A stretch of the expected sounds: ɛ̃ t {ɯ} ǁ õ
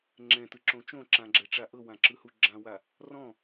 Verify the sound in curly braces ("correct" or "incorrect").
correct